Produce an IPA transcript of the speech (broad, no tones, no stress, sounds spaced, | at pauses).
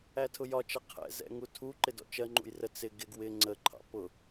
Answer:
æ tʰ ʊ j ɒ t͡ʃ ʌ qʰ ɛ̰ z ɛ̰ ŋ u tʰ u ǃ ɪ d ɔ̰ t͡ʃ ɜ ŋ͡ǃ ṵ j r ə t͡s ɪ ɡ ɪ ɡ w ɪ ŋ͡ǀ ə ǃʰ ɑ̰ p ʊ